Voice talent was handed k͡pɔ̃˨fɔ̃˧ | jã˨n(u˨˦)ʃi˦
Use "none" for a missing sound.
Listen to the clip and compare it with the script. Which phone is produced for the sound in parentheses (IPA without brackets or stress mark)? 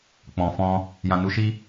u˨˦